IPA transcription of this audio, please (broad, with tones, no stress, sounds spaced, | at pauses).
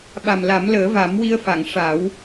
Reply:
ɓ a˨˩ m l a˨˩˦ m l əː˨˩˦ v a˨˩˦ m w i˧ ə̯ f a˨˩˨ ŋ ʂ a˨˩˦ w